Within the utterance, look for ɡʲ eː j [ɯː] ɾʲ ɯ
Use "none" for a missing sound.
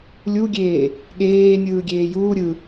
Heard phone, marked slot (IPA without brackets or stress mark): uː